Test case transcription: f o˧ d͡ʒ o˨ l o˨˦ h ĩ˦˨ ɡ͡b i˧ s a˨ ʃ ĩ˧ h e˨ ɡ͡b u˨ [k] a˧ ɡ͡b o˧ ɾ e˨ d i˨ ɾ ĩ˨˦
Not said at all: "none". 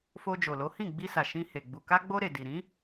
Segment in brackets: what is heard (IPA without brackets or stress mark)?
k